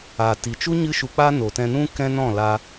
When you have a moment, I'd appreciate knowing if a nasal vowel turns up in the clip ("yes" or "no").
yes